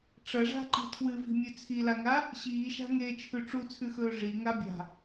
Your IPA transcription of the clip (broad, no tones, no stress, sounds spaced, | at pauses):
ʈ͡ʂ ɐ ʐ a̤ ǃ i̤ tʰ w ɨ v i̤ mʲ ʉ t͡sʰ i l a ŋ a | ɕ iː ʃ a̤ ŋ eː t͡ʃʰ ʉ ʈ͡ʂ u t͡sʰ ʉ x ɵː ʐ i ŋ a bʲ a̤